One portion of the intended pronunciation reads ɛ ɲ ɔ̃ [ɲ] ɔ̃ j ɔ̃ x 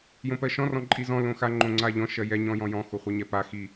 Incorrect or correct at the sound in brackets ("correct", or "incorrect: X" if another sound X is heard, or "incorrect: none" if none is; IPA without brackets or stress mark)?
incorrect: j